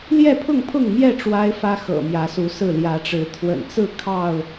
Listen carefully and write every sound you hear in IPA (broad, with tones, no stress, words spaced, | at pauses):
ljɛ˥˨pʰʊ˥˨ŋpʰʊ˥˨ŋmjɛ˥˨ ʈ͡ʂwa˦ɪ̯fä˦xɤ̰˨˩mjä˨˦ su˨˦sɹ̩˥˨ ljä˨˦ʈ͡ʂɻ̩˨˦ t̪ʰwə̰˨˩nt͡sɹ̩˥˨ kʰɑ˥˨ʊ̯